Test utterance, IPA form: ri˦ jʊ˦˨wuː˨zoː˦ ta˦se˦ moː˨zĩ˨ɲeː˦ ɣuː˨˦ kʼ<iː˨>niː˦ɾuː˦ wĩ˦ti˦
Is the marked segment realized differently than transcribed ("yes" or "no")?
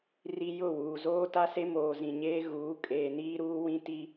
yes